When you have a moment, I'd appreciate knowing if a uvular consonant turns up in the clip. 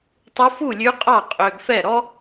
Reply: yes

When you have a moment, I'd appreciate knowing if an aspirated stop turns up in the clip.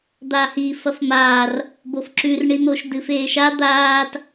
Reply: no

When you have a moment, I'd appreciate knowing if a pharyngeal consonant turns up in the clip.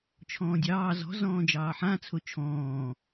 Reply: yes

